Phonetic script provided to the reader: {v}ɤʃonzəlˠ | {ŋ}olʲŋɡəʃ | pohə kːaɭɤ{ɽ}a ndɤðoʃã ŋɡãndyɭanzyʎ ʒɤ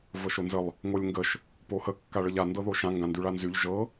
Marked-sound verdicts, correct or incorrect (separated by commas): correct, correct, incorrect